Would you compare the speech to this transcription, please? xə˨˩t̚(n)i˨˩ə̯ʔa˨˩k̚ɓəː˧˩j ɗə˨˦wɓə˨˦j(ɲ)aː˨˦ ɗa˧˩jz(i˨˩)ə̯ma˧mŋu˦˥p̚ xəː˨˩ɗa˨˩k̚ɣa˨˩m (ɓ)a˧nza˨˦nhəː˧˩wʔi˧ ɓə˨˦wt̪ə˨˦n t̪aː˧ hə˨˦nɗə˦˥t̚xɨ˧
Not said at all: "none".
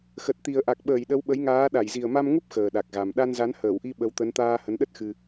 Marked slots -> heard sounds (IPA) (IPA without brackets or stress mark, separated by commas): t̪, ŋ, i˨˩, ɗ